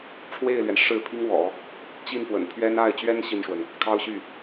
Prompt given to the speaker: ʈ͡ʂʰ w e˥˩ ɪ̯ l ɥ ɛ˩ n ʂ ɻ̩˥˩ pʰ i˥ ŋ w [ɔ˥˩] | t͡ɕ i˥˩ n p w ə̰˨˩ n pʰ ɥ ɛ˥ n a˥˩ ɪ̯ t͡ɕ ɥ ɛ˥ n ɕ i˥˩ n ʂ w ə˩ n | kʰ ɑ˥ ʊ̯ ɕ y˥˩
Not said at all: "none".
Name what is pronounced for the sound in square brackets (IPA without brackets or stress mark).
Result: ɔ̰˨˩˦